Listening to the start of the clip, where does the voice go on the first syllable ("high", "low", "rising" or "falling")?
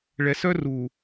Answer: low